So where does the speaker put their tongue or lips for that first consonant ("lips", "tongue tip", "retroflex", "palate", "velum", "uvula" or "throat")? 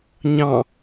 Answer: palate